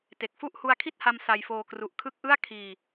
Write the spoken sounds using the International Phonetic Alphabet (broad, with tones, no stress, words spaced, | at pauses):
te˨˩k̚fu˥˩ʔ hu˧a̯kʰi˥˩t̚ha˧m sa˧jfoː˧ kru˨˩ʔ kʰɯ˦˥k̚ʔɯ˥˩a̯ kʰiː˧